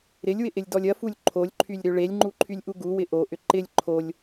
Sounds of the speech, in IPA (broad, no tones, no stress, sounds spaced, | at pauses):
ɾ ɪ lʲ w ɪ ʔ ɪ lʲ d ɔ lʲ ɐ f u lʲ ǃʰ o lʲ ǃʰ y lʲ ɾ ø ɭ e lʲ ŋ͡ǃ u ǃʰ y lʲ ʔ u ɡ u w ɪ ʔ o ʔ ʏ ǃ ɪ lʲ ǃʰ o lʲ